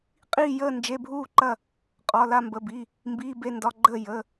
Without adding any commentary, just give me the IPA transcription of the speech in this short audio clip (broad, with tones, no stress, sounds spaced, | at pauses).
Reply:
qʼ iː˥˧ j əː˥˧ n d͡ʒ e˧˥˧ bʱ uː˥˧ ǃ ɐ˥˧ | qʼ ɒ˧˥˧ l a˥˧ m b ə˧˥˧ b i˧˥˧ | m b iː˧˥˧ b e˥˧ n d ɒ˧˥˧ ɡ͡ǃ əː˥˧ j ə˧˥˧